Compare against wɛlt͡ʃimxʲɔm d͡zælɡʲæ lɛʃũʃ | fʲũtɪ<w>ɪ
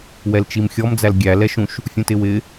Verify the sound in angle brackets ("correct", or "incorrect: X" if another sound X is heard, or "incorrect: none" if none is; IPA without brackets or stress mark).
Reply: correct